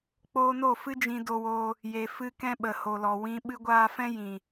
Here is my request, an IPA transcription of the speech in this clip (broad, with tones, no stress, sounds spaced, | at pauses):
k͡p oː˧ n o˦˨ f ɨ˦ d͡ʒ ĩ˧ d o˧ w oː˧ | j e˨ f ɨ˧ k ɛ̃˧ ɓ ə˨ h o˨ l ɔ˨ w ĩ˧ ɓ ɨ˧ ɡʷ aː˧ f ɛ̃˦ j ĩ˨